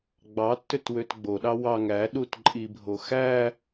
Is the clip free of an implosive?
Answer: no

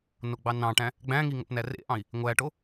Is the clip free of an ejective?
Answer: yes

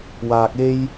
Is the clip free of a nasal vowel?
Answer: yes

